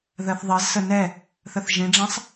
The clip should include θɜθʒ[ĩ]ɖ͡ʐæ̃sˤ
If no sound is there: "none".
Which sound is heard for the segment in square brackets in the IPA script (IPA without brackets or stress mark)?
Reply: ĩ